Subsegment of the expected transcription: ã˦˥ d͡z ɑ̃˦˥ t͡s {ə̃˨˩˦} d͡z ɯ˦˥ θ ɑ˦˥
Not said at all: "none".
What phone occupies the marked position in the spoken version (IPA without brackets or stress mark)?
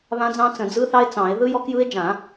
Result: ə̃˨˩˦